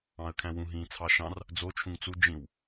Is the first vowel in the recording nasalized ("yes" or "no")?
yes